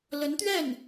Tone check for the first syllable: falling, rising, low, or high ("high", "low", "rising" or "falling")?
rising